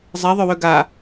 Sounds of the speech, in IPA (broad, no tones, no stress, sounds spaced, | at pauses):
zˤ ɛ ðˤ ø w ø ɡ a